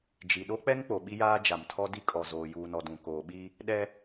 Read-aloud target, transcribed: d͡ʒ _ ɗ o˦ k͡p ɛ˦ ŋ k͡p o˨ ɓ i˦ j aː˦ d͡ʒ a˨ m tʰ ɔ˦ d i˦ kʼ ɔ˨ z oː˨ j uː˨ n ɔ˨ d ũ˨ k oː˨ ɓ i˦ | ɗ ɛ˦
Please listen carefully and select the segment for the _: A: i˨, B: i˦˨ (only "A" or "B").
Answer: A